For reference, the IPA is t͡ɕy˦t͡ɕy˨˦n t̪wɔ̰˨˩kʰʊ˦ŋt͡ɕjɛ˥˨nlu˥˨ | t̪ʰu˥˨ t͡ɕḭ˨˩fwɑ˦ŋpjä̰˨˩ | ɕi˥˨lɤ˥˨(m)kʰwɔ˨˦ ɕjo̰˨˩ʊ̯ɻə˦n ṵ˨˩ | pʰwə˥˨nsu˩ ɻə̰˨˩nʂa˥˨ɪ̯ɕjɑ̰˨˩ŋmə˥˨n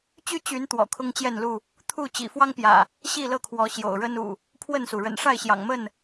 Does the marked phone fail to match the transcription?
yes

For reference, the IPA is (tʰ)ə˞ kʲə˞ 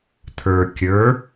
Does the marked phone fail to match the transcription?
no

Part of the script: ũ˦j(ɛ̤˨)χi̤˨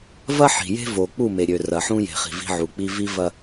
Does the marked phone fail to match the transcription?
yes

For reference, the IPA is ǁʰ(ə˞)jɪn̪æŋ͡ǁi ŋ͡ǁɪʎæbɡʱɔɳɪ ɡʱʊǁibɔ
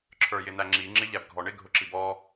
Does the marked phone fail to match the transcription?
no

